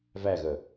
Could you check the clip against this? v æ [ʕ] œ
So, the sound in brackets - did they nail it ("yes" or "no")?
no